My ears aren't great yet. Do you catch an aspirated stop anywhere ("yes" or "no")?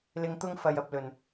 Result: no